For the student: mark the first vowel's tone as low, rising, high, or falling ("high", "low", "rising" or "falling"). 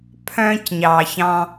high